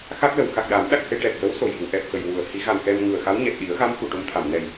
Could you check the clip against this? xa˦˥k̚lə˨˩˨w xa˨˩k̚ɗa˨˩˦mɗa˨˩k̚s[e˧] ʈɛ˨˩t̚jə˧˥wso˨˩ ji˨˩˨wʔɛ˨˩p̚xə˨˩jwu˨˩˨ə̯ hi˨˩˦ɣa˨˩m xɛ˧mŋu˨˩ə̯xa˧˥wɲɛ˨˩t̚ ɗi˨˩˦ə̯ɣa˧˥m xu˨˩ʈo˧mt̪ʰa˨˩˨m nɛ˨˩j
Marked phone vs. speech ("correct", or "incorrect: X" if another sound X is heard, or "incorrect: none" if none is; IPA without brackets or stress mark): correct